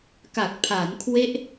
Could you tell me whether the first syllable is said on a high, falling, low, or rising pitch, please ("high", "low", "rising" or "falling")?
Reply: low